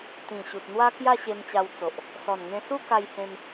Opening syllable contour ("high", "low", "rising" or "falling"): low